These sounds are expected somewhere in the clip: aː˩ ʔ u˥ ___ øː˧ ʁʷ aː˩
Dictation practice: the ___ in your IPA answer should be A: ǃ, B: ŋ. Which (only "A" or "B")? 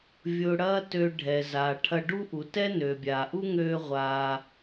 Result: B